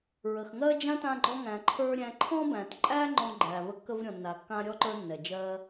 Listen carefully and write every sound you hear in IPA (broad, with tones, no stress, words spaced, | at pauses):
ɹə˩xŋɜ˦ d͡ʒã˥tã˦ɡ͡ǃɔ˦ ŋæ̃˨ǃʰə˞˦ ɾʲæ̃˨ǃʰɔ̃˦bæ̃˩tǃʼæ˦ ŋ͡ǃɔ̃˦ɡ͡ǃæ˩ və˦kːə˥vɾʲɔ̃˩nːa˩ kːã˦ɾʲɔ˥ǃə˞˦ nːɛ˩d͡ʒɜ˦